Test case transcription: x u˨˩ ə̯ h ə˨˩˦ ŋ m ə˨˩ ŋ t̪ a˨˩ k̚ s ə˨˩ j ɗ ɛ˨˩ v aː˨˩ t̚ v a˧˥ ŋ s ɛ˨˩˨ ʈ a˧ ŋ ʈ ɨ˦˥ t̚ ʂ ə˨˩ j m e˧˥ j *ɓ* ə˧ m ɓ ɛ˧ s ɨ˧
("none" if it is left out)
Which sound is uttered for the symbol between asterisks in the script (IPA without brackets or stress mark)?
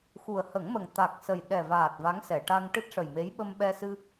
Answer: ɓ